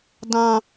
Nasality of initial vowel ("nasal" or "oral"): nasal